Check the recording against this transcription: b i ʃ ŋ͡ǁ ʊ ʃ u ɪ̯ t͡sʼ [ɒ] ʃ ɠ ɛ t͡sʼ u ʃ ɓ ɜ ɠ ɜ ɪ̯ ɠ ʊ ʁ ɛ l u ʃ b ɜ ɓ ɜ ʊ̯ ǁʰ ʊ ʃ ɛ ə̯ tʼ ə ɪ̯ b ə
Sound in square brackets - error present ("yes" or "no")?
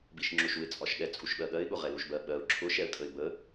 no